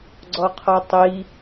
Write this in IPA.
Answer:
ɡ͡ǀ ɔ qʰ ɔ tˤ i

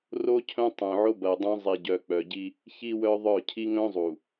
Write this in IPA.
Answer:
r o˦ cʰ œ̃˦ tˤ œ̃˨ ʕ o˦ b ɐ˨ o̯ dˤ œ̃˦ zˤ i˨ ɟ œ˨ k͡p œ˨ ɟ i˦ | ç i˦ w œ˦ ðˤ œ˦˨ cʰ i˦ ŋ œ̃˦ zˤ u˨

